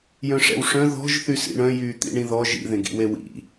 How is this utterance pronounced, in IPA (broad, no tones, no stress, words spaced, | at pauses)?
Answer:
jœ̃ʂɛ̰wʂœ̃ ðɔ̤ʒ θysḭɳœ̃ jyːt̪ḭɳĩðɔ ʒḭ ðẽɡḭwewḭ